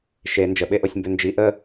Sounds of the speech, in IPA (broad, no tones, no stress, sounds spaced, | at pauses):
ʃ e n d͡ʒ ə ɓ e ʔ o sʲ m b ʏ n d͡ʒ i ʔ ə